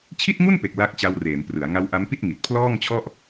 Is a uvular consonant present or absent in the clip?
absent